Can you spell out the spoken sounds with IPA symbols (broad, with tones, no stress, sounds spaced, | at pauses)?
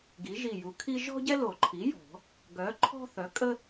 ɡ i˩˥ ʒ i˧˩ j u˩˥ kʰ i˥ ʒ ɔ̤˥ ɟ ɛ˥ l o˨˩˦ ǃʰ i˩˥ j ɔ̤˨˩˦ | ɡ œ˩˥ ǃʰ ɔ̤˥ θ œ˩˥ kʼ ə˥